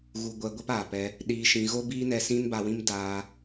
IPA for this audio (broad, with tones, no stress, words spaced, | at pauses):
ɣu˧ɡʷɛ˧ɡʷɛ˦p aː˨pɛ˧ | ɗiː˧ʃĩ˧ ɣo˦biː˦ nɛ˧sĩ˦nba˧wĩ˦m daː˦